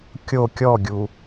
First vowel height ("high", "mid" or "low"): mid